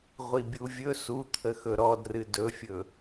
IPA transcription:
ʁʷ i bʲ u vʲ ɵ s u t̪ʰ ə x ɵ ɾ ɔ d r ɨ d ɵ fʲ ɵ

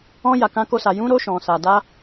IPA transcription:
ɔ̃˧ j a˨ k ã˨˦ k o˧ s a˨ j ũ˨˦ ɾ o˧ ʃ ɔ̃˨ s a˨ d a˧

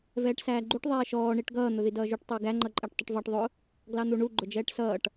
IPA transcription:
v ɛː ʈ s æː ɡ͡ǃ u ʈ ðˤ ɛː ʃ ɔː ɳ i ʈ ɡ ʌː n̪ ʊ ð i d ʌː ʒ u ʈ tˤ ʊː ɡ æ ŋ͡ǃ ʌ ǃʼ æ ʈ tˤ ʊ ʈ v ɑ ʈ ðˤ ʊ | ɡ l ɑ n̪ u ɳ u ɡ͡ǃ ʊ d͡ʒ ɛː ʈ s ʌː ʈ

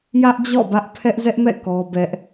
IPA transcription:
j ä˦ ʔ d͡ʑ ɔ̰˦˨ b ä˦ ʔ pʰ ɛ˦ ʔ z ɛ˦ ʔ m ɛ̰˦˨ k ɔ˦ b ɛ˦ ʔ

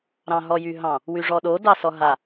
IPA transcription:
ɾ ɑ̃ ɦ ɔ j y ɦ ɑ̃ | w y ʐ ɔ ɗ o d ɑ s ɔ ɦ a

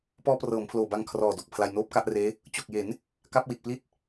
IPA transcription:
p ɔː˦˥ p r ɤː˩˦ m pʰ l oː˨˩ b a˧ ŋ kʰ r ɔː˨˩ d o˨˩ k̚ pʰ l a˧ j n oː˦˥ p̚ k a˥˩ ʔ r eː˦˥ | t͡ɕ o˨˩ k̚ j e˩˦ n | k a˦˥ p̚ w i˨˩ t̚ p l i˦˥ t̚

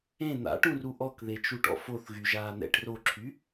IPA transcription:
ẽ n̪ a̰ ʈ ũ r u ʔ ɔ k ð e t͡ʃ u ʈ ɔ̰ f o θ ɣ y ʒ aː n̪ ɛ̰ ʈ r o ǁʰ y

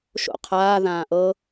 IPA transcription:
ʃ o̰ qʰ aː ð ãː ʔ ɤ

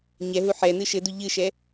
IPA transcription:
ɲ ɛ ɦ u ħ ɛ n ɨ ʃ ɘ d u ʎ ɨ ʃ ɛ

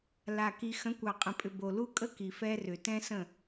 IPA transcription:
l a˨ k i˨ x ə̃˨˦ kʷ ɑ˨ qʼ ə̃˨ pʼ ʏ˨ b o˨ l u˦ kʼ ə˦ k i˨ f ɛ˦ r ʏ˨ t ɛ̃˦ s ə̃˦˨

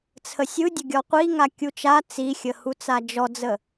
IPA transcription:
t͡sʰ ə sʲ ɯ dʲ ɐ ɡʲ ɔ qʷ i ŋ a kʲ u t͡ʃ a t͡s i xʲ ə h u t͡s a d͡ʒ ɔ d͡z ə

